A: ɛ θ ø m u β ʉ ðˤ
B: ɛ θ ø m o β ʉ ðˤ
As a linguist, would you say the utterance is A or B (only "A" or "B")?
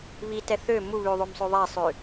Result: A